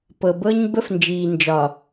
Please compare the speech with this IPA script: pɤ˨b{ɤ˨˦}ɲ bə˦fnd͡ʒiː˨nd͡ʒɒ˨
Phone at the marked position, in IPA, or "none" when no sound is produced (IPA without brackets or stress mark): ɤ˦